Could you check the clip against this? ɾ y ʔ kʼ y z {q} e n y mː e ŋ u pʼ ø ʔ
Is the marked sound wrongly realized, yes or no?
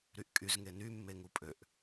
yes